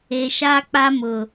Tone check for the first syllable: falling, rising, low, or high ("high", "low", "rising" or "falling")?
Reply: low